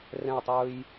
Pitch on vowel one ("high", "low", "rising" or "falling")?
falling